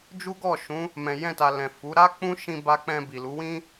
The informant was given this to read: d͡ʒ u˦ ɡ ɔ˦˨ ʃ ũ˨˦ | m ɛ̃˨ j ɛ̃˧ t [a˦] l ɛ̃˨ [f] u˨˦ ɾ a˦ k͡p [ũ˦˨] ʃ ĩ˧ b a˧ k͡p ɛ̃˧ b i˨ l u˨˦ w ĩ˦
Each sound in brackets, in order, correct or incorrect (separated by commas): incorrect, correct, incorrect